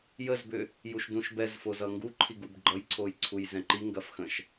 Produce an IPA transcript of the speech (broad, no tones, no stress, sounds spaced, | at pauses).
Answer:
j ə z b ʏ | j u ʃ d ũ ʃ b ɛ z f o z ʌ ŋ ɡ u ǃʰ i ɡ u b ɡ͡ǃ ʌ j ǀʰ o j ǀʰ u j z ɛ̃ ǃ i ŋ ɡ ɐ f x ə̃ ʃ